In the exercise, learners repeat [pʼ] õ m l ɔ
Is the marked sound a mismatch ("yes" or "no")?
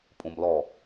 no